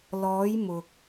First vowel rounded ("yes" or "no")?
yes